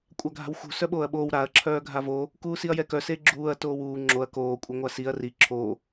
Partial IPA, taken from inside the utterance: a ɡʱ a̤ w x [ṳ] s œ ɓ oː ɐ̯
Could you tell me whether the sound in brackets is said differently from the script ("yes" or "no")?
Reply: no